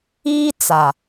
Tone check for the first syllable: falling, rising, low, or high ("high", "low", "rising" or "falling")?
high